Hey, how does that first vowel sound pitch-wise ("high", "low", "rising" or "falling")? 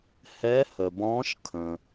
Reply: rising